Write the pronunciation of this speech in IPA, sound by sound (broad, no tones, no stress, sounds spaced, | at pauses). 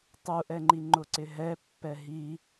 tˤ u ʔ ɛ ŋ͡ǃ i ŋ͡ǃ ʊ ǀ ɪ ɦ ɛ pː ɛ ɦ i